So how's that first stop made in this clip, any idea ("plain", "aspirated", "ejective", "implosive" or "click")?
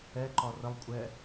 click